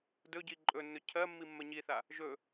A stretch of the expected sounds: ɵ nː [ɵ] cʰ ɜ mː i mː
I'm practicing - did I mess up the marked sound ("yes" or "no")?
no